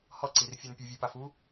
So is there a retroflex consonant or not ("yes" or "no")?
no